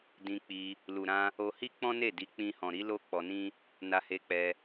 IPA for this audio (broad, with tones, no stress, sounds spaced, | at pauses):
d ĩ˧ k͡p i˧ | l u˨ ɾ ã˧ | o˧ h i˦ k͡p ɔ̃˦ n e˦˨ d i˨˦ k͡p ĩ˧ h ɔ̃˨ ɾ i˨˦ l o˦ k͡p ɔ˧ n ĩ˦ | n a˧ h e˧ k͡p ɛ˧